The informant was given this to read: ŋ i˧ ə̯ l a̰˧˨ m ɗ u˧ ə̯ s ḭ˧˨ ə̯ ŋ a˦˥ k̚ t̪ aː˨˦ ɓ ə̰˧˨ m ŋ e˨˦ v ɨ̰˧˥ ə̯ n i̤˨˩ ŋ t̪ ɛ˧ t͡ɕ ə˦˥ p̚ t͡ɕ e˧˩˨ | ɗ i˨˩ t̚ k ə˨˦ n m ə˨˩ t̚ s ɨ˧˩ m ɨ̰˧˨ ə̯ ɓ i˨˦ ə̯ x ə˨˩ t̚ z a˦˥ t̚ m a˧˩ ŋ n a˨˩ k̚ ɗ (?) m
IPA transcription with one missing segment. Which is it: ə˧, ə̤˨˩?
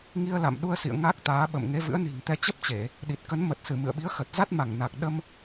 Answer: ə˧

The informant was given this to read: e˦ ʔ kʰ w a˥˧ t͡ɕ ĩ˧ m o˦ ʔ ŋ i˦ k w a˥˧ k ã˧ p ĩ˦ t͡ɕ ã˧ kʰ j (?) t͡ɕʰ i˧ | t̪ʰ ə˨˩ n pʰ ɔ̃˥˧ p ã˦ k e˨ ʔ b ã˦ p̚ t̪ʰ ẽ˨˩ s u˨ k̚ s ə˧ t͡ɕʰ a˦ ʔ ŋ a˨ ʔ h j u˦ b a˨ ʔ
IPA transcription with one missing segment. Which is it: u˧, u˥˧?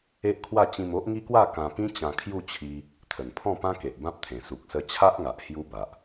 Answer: u˥˧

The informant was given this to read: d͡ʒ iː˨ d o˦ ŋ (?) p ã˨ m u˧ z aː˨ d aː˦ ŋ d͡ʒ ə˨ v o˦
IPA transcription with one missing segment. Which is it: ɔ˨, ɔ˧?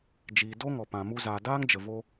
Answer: ɔ˨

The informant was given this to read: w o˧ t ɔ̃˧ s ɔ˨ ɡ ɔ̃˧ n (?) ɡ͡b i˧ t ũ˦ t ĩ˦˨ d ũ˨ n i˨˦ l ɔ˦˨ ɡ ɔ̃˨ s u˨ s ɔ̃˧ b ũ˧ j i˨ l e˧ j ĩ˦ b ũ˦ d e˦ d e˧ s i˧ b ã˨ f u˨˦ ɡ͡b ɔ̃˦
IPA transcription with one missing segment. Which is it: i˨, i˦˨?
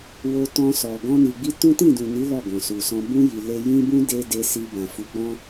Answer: i˨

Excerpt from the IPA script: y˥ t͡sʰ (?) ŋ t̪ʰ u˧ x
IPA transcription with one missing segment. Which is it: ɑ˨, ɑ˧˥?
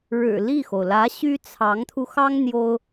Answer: ɑ˧˥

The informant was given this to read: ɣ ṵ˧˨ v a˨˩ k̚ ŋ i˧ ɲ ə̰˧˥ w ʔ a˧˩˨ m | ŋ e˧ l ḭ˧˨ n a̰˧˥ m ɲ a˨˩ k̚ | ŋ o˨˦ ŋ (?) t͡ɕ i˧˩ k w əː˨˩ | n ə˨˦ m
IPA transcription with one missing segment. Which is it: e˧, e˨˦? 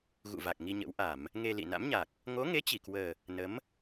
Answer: e˨˦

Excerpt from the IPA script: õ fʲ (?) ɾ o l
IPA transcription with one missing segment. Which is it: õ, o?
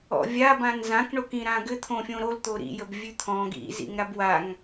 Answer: õ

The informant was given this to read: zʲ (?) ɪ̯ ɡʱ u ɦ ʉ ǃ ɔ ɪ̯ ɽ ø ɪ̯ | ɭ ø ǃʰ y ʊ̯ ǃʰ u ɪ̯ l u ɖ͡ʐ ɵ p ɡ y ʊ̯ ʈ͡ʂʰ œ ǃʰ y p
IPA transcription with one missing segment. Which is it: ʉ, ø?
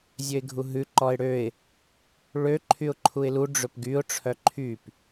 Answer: ø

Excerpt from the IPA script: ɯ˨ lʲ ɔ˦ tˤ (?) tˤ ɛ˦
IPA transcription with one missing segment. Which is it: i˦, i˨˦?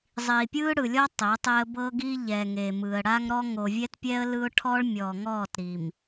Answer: i˨˦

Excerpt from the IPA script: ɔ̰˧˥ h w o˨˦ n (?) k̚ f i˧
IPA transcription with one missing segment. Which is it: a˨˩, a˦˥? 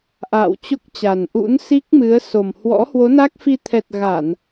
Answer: a˦˥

